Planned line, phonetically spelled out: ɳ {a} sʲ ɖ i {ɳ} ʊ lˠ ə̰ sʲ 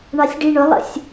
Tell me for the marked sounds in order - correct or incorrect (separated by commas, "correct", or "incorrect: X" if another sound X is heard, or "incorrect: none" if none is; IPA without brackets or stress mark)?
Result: incorrect: ɑ, correct